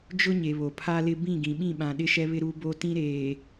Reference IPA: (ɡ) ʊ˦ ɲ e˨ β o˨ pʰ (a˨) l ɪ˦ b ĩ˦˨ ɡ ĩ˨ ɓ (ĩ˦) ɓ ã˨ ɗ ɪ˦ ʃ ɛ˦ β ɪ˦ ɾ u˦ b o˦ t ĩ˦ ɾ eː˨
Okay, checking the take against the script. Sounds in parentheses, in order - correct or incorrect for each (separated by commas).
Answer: incorrect, incorrect, incorrect